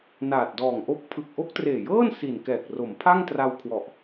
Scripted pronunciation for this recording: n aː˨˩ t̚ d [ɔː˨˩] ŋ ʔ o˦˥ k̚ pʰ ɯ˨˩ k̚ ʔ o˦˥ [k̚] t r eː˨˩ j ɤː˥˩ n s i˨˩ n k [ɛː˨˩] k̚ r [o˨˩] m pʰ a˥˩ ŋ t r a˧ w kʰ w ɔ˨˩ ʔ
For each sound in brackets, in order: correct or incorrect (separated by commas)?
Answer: correct, correct, correct, incorrect